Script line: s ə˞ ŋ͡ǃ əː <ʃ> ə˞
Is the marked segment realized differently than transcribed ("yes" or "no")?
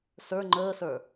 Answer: yes